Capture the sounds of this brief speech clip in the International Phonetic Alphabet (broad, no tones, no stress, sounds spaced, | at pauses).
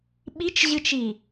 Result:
ɓ i t͡ʃ ʑ ɨ t͡ʃ i